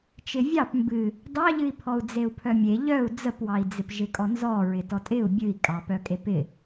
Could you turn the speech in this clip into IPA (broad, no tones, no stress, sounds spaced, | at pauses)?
t͡ʃ ɪ vʲ ɑ p m b ɨ | d ɑ ʎ ɨ i̯ pʰ ɔ u̯ d͡z e u̯ pʰ œ mʲ e ʎ œ u̯ d͡z ə p w ɑ i̯ d͡z ɪ p ʒ ɪ kʼ ɔ n z ɔ ɹ ɪ t ɔ tʼ ɪ u̯ bʲ ɨ i̯ kʼ ɑ p œ kʼ e p ɪ